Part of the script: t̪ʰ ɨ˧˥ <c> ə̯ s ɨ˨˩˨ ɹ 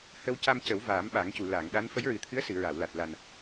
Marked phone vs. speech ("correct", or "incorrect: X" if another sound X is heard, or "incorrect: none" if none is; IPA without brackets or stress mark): incorrect: none